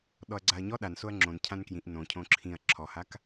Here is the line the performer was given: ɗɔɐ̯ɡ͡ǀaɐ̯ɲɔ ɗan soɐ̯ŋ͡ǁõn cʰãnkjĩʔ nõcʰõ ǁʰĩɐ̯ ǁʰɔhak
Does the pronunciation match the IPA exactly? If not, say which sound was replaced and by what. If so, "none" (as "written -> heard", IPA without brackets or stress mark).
none